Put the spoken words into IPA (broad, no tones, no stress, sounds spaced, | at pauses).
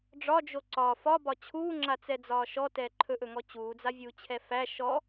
ɖ͡ʐ ɒ d͡ʒ o ǀ ɒ f ɒ b ɒ t͡ɕʰ uː ŋ͡ǁ a t͡s ɛ d͡z ɒː ʃ ɔ t ɛː ǃʰ ɵ ʔ ɵ ŋ ɔ t͡ɕ uː d͡z a vʲ uː t͡ɕʰ ɛ f æ ʃ ɔ